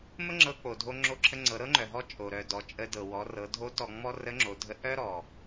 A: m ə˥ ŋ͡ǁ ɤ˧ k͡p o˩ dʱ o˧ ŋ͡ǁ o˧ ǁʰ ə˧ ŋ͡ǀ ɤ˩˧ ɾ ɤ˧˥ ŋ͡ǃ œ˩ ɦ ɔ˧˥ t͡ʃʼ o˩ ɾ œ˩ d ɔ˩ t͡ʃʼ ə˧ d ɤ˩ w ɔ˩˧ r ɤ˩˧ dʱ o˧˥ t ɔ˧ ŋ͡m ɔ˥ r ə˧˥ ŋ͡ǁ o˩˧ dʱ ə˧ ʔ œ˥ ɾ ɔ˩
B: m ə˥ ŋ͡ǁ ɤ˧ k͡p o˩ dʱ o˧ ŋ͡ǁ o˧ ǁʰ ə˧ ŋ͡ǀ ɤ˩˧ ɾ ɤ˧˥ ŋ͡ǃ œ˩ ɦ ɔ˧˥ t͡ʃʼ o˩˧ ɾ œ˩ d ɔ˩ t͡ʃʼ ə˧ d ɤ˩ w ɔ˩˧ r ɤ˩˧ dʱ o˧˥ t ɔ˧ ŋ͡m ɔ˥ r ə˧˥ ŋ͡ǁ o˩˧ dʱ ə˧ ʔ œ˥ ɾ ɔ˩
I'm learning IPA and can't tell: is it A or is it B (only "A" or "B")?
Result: A